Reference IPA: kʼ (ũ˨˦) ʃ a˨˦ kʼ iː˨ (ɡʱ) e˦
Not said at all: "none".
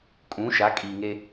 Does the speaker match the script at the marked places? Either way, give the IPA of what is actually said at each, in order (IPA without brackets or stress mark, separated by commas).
ũ˨˦, ŋ